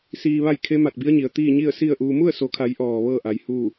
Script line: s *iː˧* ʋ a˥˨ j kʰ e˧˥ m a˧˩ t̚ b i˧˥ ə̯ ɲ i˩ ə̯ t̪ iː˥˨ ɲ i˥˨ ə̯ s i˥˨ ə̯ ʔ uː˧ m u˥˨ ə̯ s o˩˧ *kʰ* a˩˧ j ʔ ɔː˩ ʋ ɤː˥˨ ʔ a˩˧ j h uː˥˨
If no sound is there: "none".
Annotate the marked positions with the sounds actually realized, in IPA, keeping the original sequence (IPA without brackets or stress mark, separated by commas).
iː˧, kʰ